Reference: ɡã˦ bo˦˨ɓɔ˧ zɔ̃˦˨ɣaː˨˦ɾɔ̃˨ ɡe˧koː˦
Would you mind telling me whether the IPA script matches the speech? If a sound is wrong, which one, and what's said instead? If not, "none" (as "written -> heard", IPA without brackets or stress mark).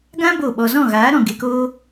none